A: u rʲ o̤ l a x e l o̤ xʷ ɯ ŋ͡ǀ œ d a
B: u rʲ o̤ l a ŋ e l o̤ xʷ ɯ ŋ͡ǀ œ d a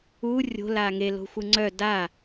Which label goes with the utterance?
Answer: B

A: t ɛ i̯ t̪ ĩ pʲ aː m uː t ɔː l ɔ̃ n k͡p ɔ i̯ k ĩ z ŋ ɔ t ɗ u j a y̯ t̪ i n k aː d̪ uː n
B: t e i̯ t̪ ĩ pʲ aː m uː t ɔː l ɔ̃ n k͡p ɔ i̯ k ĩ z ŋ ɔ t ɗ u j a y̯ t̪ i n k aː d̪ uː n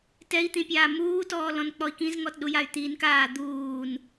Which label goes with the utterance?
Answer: A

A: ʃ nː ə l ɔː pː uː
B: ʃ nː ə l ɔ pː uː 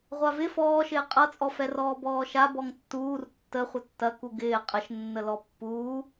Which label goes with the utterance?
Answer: B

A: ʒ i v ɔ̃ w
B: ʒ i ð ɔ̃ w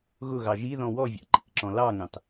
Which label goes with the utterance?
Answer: B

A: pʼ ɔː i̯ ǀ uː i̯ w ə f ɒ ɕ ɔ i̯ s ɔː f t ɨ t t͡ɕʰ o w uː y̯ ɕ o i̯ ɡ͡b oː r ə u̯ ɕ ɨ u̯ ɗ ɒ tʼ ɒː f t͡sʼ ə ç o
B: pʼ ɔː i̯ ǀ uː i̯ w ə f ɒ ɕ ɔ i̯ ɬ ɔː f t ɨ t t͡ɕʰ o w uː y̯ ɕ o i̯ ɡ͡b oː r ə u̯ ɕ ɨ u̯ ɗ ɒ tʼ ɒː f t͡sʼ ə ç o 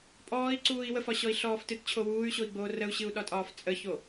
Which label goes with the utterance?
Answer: B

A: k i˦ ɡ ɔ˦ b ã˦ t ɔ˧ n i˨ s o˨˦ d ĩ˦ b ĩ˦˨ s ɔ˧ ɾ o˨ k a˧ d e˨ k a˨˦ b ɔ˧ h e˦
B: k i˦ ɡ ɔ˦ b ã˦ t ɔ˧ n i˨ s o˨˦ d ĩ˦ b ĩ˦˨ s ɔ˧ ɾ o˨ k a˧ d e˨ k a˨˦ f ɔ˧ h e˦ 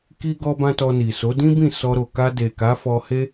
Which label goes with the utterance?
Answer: B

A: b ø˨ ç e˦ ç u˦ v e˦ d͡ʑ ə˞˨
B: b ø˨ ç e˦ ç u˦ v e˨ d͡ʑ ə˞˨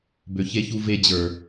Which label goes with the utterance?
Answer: A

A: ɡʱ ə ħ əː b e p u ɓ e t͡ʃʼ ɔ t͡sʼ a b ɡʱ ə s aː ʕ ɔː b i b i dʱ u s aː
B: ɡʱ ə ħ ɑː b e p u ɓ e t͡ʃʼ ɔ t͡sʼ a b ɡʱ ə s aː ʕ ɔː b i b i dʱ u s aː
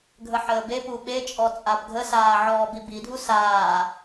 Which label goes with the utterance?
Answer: A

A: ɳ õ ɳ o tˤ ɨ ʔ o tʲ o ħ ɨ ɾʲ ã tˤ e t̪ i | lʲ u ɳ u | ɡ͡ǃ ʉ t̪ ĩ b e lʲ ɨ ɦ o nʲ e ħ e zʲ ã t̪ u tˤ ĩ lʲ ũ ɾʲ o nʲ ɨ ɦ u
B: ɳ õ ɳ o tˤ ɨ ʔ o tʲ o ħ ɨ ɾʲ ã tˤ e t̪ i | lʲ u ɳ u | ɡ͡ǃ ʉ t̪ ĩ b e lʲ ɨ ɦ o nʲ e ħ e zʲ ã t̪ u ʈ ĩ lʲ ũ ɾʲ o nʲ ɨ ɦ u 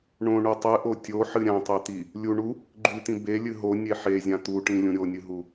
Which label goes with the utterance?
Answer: B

